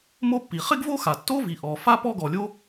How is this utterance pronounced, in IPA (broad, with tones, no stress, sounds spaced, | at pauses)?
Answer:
m o˥ pː i˩ χ ɪ˥ ɡ v o˥ x a˩ tː o˥ v i˩ ʔ ɔ˩ f a˥ p ɔ˥ ɡ ɔ˩ lʲ o˥